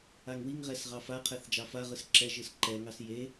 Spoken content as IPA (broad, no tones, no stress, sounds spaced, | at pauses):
a ŋ w i ŋ ʁ ɛ s ʁ ɑ f a qʰ ɛ θ d͡ʒ ɑ f a ʁ ɯ s ǁ ɛ ʒ ɯ s ǃ ɛ ŋ ɑ s j e